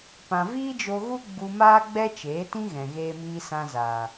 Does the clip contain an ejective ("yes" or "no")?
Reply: no